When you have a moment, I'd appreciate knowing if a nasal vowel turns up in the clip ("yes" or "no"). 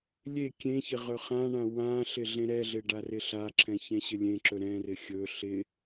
yes